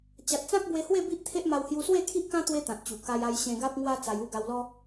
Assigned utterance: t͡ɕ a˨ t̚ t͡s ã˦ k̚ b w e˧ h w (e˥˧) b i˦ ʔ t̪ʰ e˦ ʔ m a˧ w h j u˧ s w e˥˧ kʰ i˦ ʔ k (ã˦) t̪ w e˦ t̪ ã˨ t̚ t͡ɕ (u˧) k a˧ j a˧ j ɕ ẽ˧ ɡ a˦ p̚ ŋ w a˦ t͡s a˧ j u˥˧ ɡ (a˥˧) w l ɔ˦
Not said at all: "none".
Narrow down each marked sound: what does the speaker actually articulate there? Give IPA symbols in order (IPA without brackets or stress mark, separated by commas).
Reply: e˥˧, ã˦, u˨˩, a˧